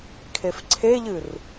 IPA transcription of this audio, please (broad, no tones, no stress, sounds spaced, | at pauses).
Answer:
kʰ e f ǀʰ e ʎ ɨ r